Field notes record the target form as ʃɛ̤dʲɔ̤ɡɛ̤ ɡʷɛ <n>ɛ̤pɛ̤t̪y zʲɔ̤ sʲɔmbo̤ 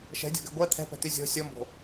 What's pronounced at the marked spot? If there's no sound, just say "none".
t̪ʰ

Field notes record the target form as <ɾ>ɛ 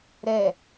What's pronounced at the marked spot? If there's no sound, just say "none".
ɾ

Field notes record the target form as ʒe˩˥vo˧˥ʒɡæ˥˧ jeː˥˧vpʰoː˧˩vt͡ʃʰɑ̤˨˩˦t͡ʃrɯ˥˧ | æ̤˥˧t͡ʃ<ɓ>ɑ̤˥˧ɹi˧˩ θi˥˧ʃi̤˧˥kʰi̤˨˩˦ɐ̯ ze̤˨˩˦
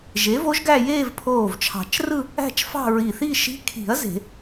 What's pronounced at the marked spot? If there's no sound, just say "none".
f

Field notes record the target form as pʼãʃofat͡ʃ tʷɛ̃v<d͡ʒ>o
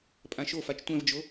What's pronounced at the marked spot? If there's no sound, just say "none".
d͡ʒ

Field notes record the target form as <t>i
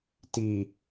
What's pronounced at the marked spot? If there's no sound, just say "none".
t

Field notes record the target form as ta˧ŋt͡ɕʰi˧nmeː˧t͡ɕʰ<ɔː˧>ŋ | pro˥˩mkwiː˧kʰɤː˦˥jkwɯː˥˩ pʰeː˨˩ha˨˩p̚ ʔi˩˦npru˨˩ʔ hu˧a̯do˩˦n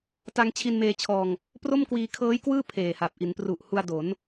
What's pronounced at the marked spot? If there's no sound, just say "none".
ɔː˧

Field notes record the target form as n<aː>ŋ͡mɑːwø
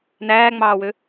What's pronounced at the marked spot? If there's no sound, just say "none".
æː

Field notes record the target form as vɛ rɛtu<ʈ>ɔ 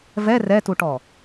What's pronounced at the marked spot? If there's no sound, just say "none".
ʈ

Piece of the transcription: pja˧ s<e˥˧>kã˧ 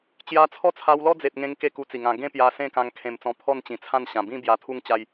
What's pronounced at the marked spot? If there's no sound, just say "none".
ẽ˥˧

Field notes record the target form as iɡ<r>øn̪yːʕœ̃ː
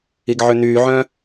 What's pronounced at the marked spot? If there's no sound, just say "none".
ʕ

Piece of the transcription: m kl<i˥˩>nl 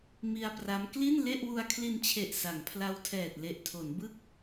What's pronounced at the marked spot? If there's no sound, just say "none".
i˥˩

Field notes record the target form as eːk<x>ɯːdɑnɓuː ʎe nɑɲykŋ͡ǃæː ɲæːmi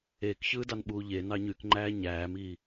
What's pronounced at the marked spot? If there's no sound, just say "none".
ç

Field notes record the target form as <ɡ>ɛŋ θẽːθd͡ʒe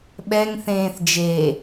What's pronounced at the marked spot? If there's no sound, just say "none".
ɓ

